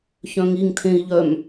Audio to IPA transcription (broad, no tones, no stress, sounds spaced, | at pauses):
ç œ̃ ŋ i ŋ tʰ ẽ i̯ ʎ œ m